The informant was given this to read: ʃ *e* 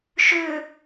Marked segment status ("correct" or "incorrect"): incorrect